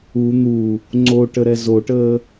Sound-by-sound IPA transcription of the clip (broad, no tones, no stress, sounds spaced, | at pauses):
u n̪ u | ŋ͡ǀ o ʈ ə ɾ ɛ z o ʈ əː